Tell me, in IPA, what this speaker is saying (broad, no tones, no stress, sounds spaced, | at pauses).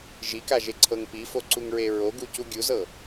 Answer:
ʒ i k a ʒ e ǀʰ ɤ ŋ p i f o ǀ u ŋ ɹ e ɹ o ɡ u c u ɡʲ u z ɤ